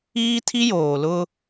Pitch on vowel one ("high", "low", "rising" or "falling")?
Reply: high